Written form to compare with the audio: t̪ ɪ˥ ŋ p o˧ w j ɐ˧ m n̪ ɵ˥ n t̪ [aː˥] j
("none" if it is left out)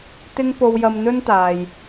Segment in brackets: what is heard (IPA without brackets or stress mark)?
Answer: aː˨